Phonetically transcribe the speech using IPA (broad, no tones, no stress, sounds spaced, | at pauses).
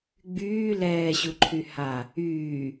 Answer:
ɡ͡b yː l ɛː ɕ u ǃʰ y h a | yː